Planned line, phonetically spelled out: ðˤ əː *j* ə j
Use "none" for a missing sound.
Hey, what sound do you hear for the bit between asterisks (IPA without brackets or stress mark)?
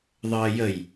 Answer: j